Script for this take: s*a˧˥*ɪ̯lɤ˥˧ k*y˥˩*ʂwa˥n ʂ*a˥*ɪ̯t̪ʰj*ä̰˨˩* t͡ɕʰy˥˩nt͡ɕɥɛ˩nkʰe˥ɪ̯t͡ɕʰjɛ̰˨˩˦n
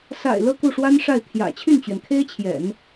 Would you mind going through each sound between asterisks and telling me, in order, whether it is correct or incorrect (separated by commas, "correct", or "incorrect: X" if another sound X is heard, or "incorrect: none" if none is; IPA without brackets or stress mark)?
incorrect: a̰˨˩, incorrect: u˥˩, incorrect: a˥˩, correct